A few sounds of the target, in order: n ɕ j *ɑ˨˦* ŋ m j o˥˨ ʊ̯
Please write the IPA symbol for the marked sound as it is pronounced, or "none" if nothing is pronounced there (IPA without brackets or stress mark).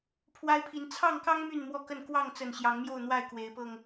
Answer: ɑ˨˦